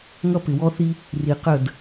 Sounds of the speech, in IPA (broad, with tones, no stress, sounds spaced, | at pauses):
ŋ ʌ˦ p ɪ˨ w ɔ˦ θ i˦ | r i˨ q ə˦˨ d